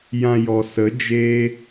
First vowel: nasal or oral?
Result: nasal